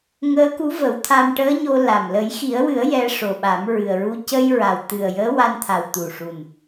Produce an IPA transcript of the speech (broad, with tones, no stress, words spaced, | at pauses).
ŋəː˧˥ku˧˥və˨˩˦wt̪ʰa˧m ʈəː˧˥ɲo˧ la˨˩m lə˨˩˦jxi˨˩˦ə̯wɨ˨˩˦ə̯ jɛ˧ʂo˨˩ɓa˨˩˦m ɹɨ˨˩ə̯ɹu˧ cə˧jɹa˨˩wt̪ɨ˨˩ə̯ jəː˧˥wa˧nt̪ʰa˨˩w t̪u˨˩ ʂu˨˩n